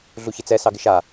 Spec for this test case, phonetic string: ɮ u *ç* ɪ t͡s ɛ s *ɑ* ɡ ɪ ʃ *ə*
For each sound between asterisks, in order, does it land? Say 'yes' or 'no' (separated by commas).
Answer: yes, yes, no